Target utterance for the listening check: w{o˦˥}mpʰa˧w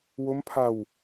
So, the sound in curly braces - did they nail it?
yes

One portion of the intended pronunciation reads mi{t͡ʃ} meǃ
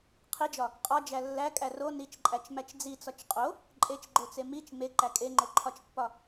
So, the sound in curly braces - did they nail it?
yes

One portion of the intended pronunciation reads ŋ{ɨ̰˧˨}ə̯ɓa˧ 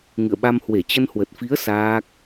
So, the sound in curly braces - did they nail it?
yes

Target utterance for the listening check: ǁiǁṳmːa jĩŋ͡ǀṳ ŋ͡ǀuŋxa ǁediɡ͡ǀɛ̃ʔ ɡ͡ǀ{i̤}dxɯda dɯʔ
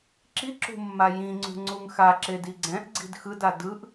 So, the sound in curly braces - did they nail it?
yes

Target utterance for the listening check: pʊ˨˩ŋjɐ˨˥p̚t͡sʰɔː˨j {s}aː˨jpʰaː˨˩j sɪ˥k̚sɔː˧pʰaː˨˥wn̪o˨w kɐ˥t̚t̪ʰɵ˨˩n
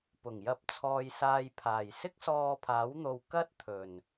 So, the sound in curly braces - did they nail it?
yes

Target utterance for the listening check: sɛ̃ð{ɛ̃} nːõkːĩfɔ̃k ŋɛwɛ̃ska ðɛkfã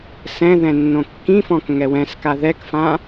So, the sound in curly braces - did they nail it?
yes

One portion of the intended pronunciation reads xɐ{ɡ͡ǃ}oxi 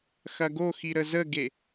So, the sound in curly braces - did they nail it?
no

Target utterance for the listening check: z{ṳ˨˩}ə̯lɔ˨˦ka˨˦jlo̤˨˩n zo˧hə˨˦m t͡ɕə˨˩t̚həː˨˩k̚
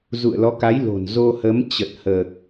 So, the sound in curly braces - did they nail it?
no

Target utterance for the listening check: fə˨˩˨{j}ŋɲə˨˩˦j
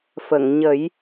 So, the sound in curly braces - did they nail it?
no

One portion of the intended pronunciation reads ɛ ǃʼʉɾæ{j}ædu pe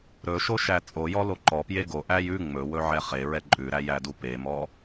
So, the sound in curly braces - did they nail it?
yes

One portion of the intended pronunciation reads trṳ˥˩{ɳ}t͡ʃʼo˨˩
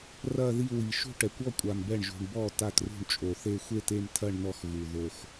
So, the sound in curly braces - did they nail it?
yes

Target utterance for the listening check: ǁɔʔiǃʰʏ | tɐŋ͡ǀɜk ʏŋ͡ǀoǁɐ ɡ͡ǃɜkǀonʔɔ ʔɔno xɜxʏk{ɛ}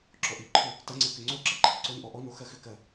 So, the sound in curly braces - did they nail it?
no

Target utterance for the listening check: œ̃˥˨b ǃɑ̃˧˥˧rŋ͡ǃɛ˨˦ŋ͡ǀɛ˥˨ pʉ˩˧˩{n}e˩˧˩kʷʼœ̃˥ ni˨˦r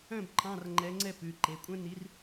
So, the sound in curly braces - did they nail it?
no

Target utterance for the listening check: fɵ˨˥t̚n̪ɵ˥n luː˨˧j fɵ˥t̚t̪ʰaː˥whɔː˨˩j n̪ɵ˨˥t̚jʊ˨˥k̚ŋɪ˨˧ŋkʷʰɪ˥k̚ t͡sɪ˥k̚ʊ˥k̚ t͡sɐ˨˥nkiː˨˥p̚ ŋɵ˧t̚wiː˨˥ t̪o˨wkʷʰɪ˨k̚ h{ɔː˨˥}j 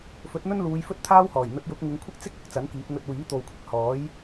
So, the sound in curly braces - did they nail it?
yes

